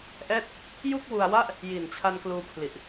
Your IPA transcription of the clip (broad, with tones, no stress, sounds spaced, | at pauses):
ʔ ɛː˥˩ t̚ | j u˥˩ k̚ w u˧ a̯ w a˥˩ ʔ | j i˨˩ n t͡ɕʰ a˧ n k l uː˧ pʰ l i˨˩ ʔ